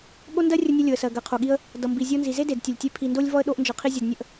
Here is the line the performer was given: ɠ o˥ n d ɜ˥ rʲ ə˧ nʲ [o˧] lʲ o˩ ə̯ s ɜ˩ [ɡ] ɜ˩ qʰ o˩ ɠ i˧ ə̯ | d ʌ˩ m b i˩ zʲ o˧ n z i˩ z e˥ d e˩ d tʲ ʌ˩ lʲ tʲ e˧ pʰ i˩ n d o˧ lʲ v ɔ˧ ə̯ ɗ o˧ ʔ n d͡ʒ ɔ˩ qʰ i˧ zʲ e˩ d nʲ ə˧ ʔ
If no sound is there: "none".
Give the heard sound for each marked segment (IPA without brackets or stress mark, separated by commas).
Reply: o˧, ɡ